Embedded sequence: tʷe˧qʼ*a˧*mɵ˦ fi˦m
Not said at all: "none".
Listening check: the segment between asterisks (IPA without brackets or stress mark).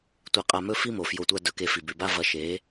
a˧